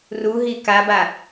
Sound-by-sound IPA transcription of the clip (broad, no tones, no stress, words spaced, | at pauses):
ruɦi kaba